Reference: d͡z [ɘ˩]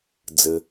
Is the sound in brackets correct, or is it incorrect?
correct